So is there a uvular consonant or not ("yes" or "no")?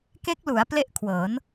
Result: no